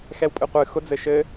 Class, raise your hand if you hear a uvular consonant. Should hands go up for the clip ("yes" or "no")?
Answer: yes